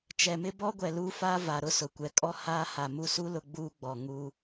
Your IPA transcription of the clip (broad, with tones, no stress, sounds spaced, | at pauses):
t͡ʃ ɛ˨ m ɪ˦ b ɔ˦ ɡʷ ɛ˨ l uː˦ f aː˦ v a˨ ɾ ʊ˦ s ʊ˨ kʷ ɛ˨ kʼ ɔ˦ h aː˦ h a˨ m u˦ s u˦ l ʊ˦ ɡ͡b uː˦ ɡ͡b ɔ˨ ŋ u˦